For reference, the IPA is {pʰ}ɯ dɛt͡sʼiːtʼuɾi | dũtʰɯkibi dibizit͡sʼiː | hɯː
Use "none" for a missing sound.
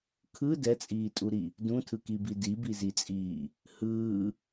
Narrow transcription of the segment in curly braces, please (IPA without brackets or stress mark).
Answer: kʰ